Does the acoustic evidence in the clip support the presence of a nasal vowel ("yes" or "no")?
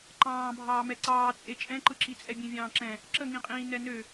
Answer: yes